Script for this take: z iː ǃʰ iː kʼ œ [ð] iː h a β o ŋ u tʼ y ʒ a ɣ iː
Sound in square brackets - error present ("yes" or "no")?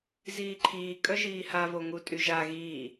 yes